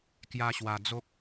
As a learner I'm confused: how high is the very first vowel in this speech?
low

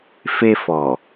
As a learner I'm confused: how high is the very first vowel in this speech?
mid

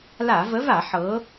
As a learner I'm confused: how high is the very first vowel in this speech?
low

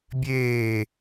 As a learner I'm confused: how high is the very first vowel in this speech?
mid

